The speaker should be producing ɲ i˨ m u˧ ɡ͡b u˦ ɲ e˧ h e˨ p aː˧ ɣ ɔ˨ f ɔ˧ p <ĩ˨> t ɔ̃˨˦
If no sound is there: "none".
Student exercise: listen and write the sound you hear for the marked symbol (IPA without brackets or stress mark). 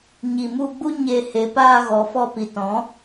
i˨